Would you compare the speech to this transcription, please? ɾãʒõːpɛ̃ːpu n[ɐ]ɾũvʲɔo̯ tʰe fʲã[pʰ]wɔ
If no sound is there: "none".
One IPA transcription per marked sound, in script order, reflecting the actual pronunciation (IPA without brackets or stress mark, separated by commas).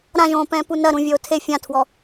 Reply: ɐ, tʰ